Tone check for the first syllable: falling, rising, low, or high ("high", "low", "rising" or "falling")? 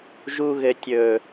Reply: high